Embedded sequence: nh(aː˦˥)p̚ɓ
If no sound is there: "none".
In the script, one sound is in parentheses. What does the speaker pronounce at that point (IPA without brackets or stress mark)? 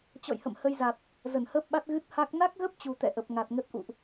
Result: əː˦˥